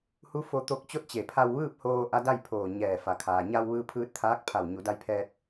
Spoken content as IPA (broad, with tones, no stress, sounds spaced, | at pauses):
h u˧˥ f o˧ t̪ o˧ k̚ t͡ɕ o˥˨ t̚ t͡ɕ e˧˩ pʰ a˧ w ʋ ɯː˥˨ p̚ h oː˧ ʔ a˧˥ d a˥˨ j pʰ oː˧˩ ɲ ɛː˧˩ f a˩ kʰ aː˩ ɲ a˧ w ʋ ɯː˧ pʰ ɯː˧ t̚ t̪ʰ aː˧˥ k̚ pʰ a˧˩ w ɲ u˩˧ d a˧ j pʰ ɛː˧ t̚